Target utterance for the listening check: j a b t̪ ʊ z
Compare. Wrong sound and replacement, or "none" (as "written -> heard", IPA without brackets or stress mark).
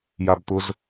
none